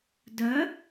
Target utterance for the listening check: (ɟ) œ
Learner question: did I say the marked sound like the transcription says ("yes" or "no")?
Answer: no